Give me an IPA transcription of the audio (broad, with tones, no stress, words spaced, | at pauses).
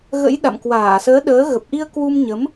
ɣə̰˧˥j ɗa̰˧˨mkwaː˧˩səː˨˦ɗəː˨˦ ɣə˨˩p̚ʔi˧ə̯ kwu˧mɲə˨˦m